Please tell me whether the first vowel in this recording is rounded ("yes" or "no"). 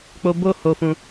yes